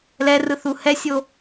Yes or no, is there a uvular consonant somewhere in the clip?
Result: no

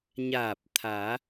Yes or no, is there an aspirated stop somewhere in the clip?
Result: yes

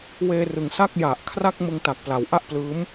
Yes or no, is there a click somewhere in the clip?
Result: no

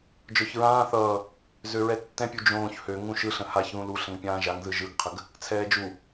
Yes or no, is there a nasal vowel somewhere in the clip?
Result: yes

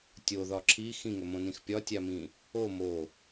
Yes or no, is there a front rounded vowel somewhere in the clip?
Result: no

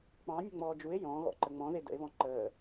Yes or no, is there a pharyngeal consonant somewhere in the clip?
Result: no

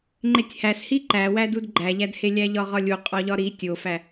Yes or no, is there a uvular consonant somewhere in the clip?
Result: yes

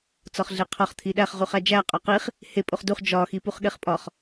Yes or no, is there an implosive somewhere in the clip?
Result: yes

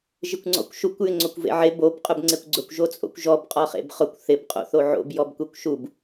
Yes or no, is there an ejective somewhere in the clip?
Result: yes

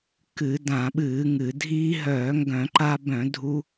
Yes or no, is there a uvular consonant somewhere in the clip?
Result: no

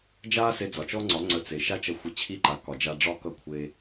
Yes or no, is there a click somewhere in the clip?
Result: yes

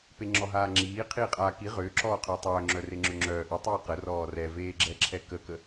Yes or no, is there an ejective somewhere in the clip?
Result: yes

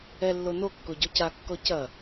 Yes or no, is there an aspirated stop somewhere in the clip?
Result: no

